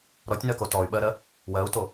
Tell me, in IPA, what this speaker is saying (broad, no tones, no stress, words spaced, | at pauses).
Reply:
ɾɔtʲnɜko tɔy̯ɓɜɾɜ | wɜu̯to